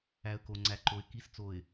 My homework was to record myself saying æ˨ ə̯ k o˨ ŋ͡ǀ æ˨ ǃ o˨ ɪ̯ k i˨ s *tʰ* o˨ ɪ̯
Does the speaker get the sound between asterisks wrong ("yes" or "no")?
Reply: yes